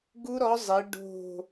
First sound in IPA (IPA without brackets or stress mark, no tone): ɡ